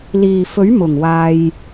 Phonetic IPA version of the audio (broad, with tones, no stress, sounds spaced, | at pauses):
l iː˨˩ f ɵ˨˥ ɥ m ʊ˨˩ ŋ w aː˨ j